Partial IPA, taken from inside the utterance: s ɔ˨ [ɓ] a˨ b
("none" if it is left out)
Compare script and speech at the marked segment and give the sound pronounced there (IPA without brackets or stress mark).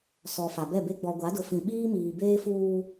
f